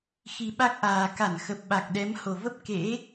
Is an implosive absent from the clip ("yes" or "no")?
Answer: no